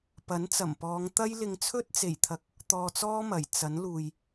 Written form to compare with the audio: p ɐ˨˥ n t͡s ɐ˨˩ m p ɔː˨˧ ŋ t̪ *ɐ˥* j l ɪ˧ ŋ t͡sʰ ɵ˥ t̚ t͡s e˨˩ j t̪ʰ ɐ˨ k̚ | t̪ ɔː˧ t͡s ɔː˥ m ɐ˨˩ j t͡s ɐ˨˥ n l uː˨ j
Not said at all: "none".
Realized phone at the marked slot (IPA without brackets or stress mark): ɐ˥